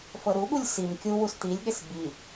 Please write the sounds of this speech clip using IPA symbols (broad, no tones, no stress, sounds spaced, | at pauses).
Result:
f ɤ ɾ u ɠ u lʲ s i m kʲ u w u s t̪ i lʲ ɠ e s b i